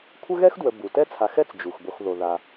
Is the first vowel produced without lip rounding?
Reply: yes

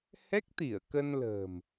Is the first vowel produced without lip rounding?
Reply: yes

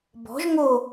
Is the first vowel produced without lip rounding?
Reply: no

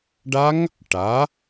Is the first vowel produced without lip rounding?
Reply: yes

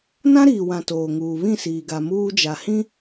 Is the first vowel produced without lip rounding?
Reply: yes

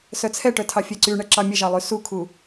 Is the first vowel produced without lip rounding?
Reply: no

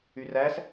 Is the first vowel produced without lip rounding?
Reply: no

